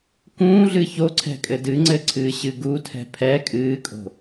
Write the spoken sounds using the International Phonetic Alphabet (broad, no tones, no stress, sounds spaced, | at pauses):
k ũː ɮ ɨ ç o ǀʰ ɛ̤ kʼ ɘ d ɨ ŋ͡ǀ ɘ ǀʰ ɨː ɕ ɨ ɡ u tʰ ɛ̤ pʰ ɛ kʼ ɨː kʼ o̤